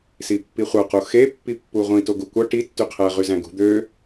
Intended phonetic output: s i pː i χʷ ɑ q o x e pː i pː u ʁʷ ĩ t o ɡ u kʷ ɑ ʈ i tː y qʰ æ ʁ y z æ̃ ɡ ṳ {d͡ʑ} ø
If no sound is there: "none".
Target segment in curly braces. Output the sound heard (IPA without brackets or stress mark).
d̪